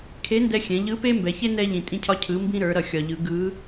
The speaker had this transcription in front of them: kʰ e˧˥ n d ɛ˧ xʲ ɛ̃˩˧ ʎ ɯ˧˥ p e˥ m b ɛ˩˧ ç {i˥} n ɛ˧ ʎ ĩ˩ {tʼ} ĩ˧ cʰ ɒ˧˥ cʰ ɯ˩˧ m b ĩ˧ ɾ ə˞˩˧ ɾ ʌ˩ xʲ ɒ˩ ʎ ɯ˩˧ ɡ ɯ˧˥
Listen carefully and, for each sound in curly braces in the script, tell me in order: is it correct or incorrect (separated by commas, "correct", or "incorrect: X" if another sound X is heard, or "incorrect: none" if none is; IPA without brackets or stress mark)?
incorrect: e˥, correct